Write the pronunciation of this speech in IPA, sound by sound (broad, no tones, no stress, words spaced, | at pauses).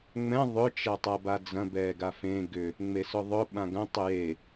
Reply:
ŋ͡mɛ̃ ðˤʏ t͡ʃɐtˤabad͡zɐ̃ bɛɡafẽ ɡʏ | ŋ͡mesʊðˤʊ ɓãɡɐ̃ tˤʏje